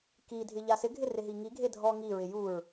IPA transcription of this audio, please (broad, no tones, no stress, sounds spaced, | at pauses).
k i dʱ ɪ ʎ a s ɪ ɡʱ ɪ r ɪ ɦ i ŋ i ɡʱ e dʱ ɔ ŋ i ɹ ɪ j u ɹ